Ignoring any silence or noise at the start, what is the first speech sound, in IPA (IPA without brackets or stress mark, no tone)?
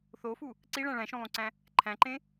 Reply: θ